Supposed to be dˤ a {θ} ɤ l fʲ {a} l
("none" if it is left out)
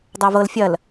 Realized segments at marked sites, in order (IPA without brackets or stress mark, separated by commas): v, ɐ